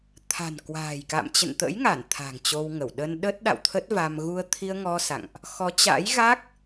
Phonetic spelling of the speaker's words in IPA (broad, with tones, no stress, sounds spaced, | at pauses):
t̪ʰ a̤˨˩ n k w a̤ː˨˩ j k a̰˧˨ m t͡ɕ ə̰˧˨ n t̪ ə̰˧˥ j ŋ a˧˩ n t̪ʰ a̤˨˩ ŋ t͡ɕ o˧ w ŋ ə˧˩ w ɗ ə˧ n ɗ ə˦˥ t̚ ɗ a̰˧˨ w t̪ʰ ə˦˥ t̚ v a˧ m ɣ u˧ ə̯ t̪ʰ i˧ ə̯ ŋ ɔ˧ s a̰˧˨ ŋ ʔ | x ɔ˨˦ t͡ɕ a̰˧˥ j ɣ a˦˥ k̚